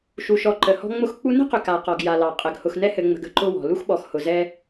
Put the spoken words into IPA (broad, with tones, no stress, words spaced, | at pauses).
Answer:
ʃu˨ʃɔ˨ ǃə˨hɔ̤˦ŋ͡mʊ˦x k͡pu˦ nə̤˦qʏ˨ ka˨ qɔ˨ɡja˨lɑ˨ qʼɘ˨ɡ hʊ˨xnɛ˦hɘ˨ŋ͡mə̤˨ɡ ə̤˦ǃʊ˦wɔ̤˨ lu˦xɓɔ˨xhʊ˨zɛ˦